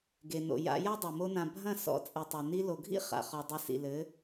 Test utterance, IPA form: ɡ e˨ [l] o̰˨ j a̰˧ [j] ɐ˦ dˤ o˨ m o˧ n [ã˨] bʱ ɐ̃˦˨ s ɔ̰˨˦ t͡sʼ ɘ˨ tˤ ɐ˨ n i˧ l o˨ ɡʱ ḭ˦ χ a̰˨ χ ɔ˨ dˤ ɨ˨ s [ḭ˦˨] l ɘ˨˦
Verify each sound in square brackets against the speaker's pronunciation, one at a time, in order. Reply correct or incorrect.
incorrect: n, correct, correct, incorrect: ḭ˨

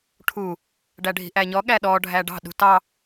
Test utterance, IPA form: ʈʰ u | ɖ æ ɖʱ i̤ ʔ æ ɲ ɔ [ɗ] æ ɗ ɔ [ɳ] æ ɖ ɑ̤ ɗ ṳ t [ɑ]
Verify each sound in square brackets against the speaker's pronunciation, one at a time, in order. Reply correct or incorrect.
incorrect: ɠ, incorrect: ɖʱ, correct

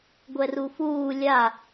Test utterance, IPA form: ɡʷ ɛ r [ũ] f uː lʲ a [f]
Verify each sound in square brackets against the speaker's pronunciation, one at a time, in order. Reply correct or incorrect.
incorrect: u, incorrect: none

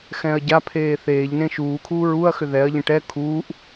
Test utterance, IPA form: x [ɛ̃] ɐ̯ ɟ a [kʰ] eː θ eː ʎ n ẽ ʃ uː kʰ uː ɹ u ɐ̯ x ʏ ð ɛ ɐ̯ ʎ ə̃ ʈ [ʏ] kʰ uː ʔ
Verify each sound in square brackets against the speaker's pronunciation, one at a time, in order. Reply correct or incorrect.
correct, incorrect: pʰ, incorrect: ɛ

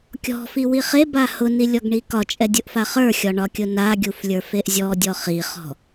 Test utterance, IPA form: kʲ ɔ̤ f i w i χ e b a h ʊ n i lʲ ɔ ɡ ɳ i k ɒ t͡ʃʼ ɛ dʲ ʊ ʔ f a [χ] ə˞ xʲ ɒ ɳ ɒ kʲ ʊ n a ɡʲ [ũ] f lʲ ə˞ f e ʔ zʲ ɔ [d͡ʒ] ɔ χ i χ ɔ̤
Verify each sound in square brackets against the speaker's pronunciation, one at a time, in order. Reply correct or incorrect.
correct, incorrect: u, incorrect: dʲ

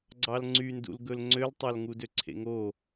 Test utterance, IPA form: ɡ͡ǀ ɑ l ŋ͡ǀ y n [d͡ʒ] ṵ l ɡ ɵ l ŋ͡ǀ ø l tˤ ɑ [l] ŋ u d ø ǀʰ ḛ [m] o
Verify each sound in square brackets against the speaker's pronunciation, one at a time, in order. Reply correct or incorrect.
incorrect: d, correct, incorrect: ŋ

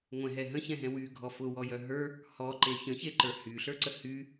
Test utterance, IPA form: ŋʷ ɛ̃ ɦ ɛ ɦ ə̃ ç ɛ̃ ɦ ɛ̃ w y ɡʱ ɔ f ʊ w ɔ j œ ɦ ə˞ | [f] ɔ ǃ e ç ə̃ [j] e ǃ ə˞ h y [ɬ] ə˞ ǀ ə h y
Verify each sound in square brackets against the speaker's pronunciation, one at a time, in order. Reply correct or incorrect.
incorrect: h, incorrect: ç, correct

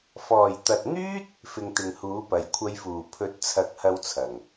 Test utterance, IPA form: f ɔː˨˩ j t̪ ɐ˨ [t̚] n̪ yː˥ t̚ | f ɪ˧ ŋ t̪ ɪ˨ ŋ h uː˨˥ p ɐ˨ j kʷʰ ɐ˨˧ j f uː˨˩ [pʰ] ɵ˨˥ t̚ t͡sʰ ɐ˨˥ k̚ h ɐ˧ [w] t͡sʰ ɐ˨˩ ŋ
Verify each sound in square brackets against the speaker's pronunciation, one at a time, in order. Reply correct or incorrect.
correct, correct, correct

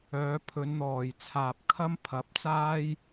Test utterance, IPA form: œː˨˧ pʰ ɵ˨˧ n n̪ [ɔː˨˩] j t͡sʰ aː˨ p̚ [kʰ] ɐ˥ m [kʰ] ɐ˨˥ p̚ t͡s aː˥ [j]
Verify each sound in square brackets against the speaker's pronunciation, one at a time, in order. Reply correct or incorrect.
correct, correct, incorrect: pʰ, correct

